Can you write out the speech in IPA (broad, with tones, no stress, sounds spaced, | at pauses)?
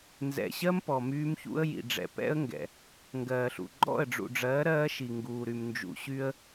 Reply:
n z ɛ̰˨ ɕ ɜ˦ m p ɔ˨ m yː˦ m ç ṵ˦ ə̯ j ḭ˨ ɖ͡ʐ ɛ̰˨ p ɛ̰˦ ə̯ ŋ ɡ ɛ̰˨ | ŋ ɡ ɜː˨ ɬ ṵ˨ ɡ͡ǃ ɔ̰˦˨ ə̯ ɖ͡ʐ ṵ˨ ɖ͡ʐ ɜː˨˦ ɾ ɜː˦ ʃ i˨ ŋ ɡ uː˨ ɾ y˨ m n d͡ʒ ṵ˨ ɕ y˦ ə̯